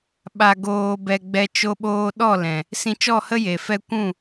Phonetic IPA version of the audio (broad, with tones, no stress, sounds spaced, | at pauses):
ɓ a˧ ɡ oː˧ b ɛ˧ ɡ͡b ɛ˧ t͡ʃ o˧ ɓ oː˧ ɗ ɔ˦˨ l ɛ̃˨ | s ĩ˧ t͡ʃ ɔ˦˨ h ə˦ j e˨ f ɛ˦ kʷ ũ˦˨